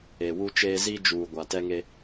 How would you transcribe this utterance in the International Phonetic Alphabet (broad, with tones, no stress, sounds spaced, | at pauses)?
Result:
e˨ w u˦ t͡ʃ eː˦ z i˦ d͡ʒ uː˨ ɡʷ a˨ t ɛ˦ ŋ e˦